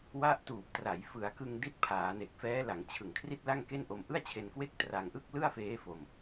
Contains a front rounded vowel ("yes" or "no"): no